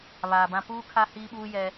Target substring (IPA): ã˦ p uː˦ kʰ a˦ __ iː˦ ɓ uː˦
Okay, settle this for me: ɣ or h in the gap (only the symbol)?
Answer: h